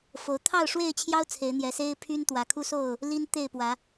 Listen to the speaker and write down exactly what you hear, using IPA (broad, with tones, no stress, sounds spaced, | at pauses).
f o˨˦ ʊ̯ t̪ʰ ɑ˥˨ ʊ̯ ʂ w e˥˨ ɪ̯ t͡ɕʰ j ɑ˦ ʊ̯ t͡sʰ e˨˦ ɪ̯ n̪ j ɛ˨˦ s e˦ ɪ̯ pʰ y˦ n t̪ w ä˨˩ kʰ u˦ s o˥˨ ʊ̯ | l i˦ n t̪ e˥˨ ɪ̯ p w ä˨˦